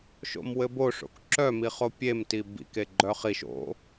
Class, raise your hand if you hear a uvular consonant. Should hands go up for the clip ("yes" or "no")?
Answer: yes